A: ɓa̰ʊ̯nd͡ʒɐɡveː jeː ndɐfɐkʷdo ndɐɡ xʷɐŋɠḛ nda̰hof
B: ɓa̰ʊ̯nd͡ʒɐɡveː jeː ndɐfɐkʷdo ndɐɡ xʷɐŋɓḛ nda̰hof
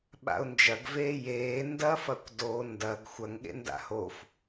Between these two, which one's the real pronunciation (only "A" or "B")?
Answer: A